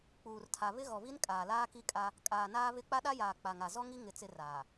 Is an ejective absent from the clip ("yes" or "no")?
no